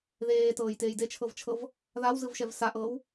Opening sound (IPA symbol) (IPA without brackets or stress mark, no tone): ð